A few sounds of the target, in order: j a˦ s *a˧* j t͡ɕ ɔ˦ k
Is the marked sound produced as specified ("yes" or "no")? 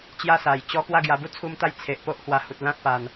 no